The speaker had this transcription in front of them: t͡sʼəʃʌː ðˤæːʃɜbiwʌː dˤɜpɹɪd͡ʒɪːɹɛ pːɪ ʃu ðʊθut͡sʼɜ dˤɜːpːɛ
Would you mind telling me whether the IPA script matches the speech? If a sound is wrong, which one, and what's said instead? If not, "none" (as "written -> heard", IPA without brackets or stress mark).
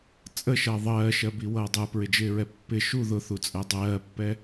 æː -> ɜː